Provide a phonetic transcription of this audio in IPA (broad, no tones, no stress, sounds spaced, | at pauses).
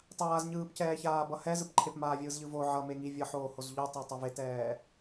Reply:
tˤ aː z ɲ ɯː p c ɛː ç aː b ʌ h ɛ z ɯ p ǃʰ e p m aː vʲ ɯː z ʎ ɯ v o ʕ ʌ m e ŋ i vʲ ʌ ħ oː h o z ʎ o tˤ e tˤ o v e t ɛː